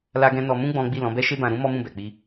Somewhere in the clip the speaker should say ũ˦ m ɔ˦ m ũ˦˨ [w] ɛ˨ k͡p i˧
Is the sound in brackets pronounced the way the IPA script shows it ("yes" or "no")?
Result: no